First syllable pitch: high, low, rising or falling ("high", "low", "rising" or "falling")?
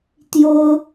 high